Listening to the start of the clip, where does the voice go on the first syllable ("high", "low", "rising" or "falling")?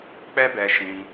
high